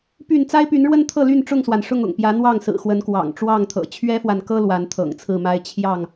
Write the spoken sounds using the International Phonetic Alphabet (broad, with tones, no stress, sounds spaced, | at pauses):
p y˥˨ n t͡s a˦ ɪ̯ p y˨˦ n ɻ w ə˦ n t̪ʰ ɤ˥˨ l y˥˨ n ʈ͡ʂ ʊ˥˨ ŋ s w a˩ n ʂ ʊ˥˨ ŋ ʊ̰˨˩ ŋ p j ä˨˦ n̪ w ɑ˥˨ ŋ s ɹ̩˨˩ x w ə˨˦ n k w ɑ̰˨˩ ŋ ʈ͡ʂ w ɑ˥˨ ŋ t̪ʰ ɤ̰˨˩ t͡ɕʰ ɥ ɛ˦ f w a˨ n k ɤ˦ l w a˨˦ n t̪ʰ ɤ̰˨˩ ŋ t͡sʰ ɹ̩˥˨ m a˦ ɪ̯ t͡ɕʰ j ɑ˥˨ ŋ